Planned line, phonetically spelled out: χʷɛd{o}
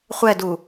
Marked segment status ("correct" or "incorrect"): incorrect